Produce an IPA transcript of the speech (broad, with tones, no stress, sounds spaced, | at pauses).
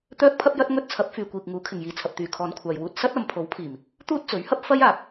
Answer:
t̪ œː˥ k̚ pʰ ɐ˥ p̚ j ɐ˥ t̚ ŋ ɵ˥ t̚ t͡sʰ ɐ˨˥ p̚ f yː˨ kʷ iː˨ k̚ ŋ uː˨˥ kʰ ɪ˨ ŋ j iː˨˧ t͡sʰ ɐ˨ p̚ t̪ yː˨ kʰ ɔː˨˧ n kʷʰ aː˨ j w uː˧ t̚ s ɐ˥ t̚ ɐ˨˧ m pʰ o˨˥ w pʰ iː˨˩ m | t̪ uː˥ t̚ t͡s ɵ˨˥ ɥ h ɐ˥ p̚ f ɐ˥ j aː˨ p̚